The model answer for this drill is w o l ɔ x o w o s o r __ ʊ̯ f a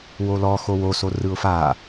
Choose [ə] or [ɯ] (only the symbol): ɯ